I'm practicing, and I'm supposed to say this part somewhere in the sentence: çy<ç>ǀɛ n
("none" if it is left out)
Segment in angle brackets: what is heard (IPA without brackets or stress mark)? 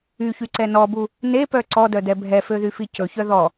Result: none